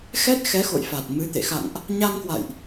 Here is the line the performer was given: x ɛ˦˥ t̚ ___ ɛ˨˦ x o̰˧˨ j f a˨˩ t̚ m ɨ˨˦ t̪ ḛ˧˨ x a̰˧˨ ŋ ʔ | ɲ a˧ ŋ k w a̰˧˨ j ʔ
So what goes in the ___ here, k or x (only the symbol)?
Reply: x